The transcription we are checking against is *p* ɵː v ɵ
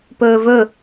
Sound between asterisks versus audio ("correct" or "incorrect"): correct